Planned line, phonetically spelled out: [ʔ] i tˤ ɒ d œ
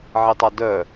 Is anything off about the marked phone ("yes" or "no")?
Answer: yes